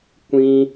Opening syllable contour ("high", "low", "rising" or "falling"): high